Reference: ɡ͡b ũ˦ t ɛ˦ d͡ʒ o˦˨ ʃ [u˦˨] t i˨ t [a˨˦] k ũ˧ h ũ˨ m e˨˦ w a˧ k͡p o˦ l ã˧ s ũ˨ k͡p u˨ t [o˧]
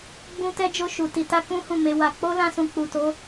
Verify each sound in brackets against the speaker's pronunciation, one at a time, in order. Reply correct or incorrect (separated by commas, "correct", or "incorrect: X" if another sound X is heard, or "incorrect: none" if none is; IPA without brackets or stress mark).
incorrect: u˨, incorrect: a˧, incorrect: o˨˦